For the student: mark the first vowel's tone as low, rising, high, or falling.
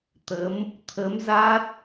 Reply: rising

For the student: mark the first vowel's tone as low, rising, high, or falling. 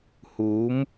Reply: rising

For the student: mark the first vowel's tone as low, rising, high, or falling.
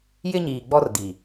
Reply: high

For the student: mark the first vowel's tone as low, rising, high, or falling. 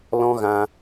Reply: high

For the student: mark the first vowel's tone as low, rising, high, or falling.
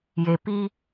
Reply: low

